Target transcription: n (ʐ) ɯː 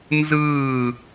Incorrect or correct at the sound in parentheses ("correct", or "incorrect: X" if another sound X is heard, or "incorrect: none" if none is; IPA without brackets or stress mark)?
incorrect: z